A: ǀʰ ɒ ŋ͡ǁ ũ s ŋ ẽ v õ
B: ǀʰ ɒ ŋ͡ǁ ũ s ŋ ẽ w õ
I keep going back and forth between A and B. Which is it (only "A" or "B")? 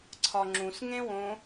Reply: B